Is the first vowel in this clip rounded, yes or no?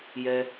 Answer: no